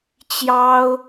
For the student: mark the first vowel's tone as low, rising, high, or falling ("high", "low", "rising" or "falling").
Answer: high